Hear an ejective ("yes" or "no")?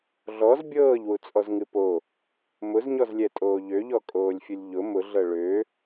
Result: yes